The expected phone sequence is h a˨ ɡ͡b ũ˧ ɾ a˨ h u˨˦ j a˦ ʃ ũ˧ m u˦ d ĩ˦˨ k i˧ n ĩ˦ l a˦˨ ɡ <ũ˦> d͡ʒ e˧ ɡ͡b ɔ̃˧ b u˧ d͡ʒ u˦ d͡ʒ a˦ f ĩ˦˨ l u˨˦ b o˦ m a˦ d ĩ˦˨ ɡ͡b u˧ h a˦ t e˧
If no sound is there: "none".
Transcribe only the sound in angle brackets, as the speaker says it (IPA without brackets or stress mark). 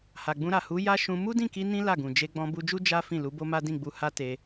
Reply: ũ˨